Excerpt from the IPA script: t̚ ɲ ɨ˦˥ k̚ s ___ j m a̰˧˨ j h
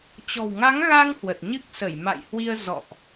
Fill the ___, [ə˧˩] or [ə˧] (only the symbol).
ə˧˩